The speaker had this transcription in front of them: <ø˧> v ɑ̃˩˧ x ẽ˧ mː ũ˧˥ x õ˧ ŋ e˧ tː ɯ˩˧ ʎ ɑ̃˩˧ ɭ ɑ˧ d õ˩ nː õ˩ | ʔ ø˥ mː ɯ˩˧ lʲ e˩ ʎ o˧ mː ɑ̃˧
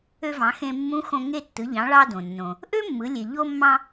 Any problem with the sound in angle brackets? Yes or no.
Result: no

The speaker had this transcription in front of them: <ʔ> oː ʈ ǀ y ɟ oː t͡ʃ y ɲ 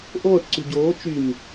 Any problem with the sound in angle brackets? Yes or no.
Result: no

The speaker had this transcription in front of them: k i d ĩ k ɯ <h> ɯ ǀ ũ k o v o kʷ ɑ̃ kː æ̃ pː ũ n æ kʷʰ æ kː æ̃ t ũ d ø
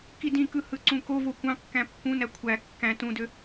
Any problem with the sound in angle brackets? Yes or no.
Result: no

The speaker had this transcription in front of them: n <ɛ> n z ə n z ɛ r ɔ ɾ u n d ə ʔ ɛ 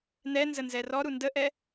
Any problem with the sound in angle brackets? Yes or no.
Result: no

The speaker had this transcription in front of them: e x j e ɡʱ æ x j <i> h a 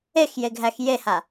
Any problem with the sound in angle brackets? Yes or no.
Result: yes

